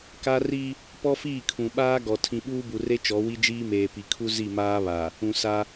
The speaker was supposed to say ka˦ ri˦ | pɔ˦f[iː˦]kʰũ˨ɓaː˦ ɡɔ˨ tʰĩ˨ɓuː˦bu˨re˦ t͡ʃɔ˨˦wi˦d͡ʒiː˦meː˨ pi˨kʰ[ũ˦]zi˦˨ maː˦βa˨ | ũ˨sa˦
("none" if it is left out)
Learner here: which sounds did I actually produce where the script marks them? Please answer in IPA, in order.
iː˦˨, u˦

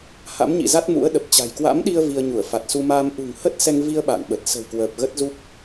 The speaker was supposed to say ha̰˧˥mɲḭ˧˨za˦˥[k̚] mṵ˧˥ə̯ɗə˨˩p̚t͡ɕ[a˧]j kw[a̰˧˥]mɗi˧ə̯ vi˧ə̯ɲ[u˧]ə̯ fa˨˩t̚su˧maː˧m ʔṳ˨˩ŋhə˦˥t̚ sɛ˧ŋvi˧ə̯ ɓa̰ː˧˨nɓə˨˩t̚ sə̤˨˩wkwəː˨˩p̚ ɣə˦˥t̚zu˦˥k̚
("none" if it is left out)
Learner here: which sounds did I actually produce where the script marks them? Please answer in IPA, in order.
t̚, a̤˨˩, a̰˧˥, u˧˩

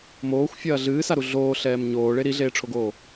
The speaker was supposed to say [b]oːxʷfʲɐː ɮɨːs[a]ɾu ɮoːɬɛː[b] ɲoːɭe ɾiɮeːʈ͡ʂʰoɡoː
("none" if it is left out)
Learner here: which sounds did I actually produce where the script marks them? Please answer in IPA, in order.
m, a, m

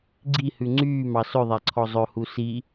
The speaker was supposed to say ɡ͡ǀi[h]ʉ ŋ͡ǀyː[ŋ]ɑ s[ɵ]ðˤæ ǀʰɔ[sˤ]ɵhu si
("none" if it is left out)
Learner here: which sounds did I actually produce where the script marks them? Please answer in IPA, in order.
h, m, ɵ, zˤ

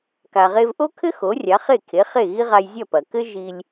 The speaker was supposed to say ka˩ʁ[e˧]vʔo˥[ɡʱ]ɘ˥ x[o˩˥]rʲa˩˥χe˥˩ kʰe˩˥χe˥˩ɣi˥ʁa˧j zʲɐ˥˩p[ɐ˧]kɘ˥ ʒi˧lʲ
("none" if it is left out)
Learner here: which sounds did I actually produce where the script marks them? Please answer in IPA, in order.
e˧, kʰ, o˩˥, ɐ˩

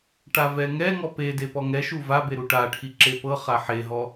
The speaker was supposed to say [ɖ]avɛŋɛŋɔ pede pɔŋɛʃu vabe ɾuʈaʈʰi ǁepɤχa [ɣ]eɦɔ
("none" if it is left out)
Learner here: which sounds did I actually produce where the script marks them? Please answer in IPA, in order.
ʈ, ħ

